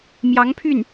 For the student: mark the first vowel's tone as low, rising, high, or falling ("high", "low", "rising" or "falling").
rising